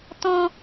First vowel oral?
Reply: no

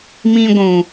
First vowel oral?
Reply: no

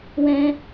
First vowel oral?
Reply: no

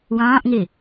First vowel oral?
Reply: no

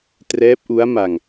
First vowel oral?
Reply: yes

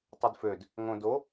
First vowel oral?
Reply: yes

